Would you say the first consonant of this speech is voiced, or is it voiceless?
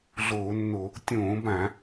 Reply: voiced